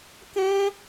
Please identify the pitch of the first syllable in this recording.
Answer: high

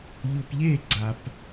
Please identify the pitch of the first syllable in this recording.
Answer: low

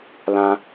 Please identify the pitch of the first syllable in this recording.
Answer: high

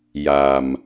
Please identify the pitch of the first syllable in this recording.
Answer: low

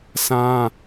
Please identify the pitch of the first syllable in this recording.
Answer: high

